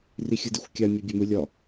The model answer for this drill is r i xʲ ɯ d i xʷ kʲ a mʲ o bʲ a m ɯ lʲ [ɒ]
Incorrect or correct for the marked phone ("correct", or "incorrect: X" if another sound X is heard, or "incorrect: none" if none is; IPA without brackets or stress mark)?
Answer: correct